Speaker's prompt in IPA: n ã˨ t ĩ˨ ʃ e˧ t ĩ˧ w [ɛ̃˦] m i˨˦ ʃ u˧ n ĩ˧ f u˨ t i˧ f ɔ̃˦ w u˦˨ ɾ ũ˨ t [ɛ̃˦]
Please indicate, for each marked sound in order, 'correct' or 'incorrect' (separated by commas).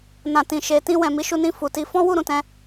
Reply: incorrect, incorrect